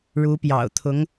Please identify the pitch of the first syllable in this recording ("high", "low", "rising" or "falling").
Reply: rising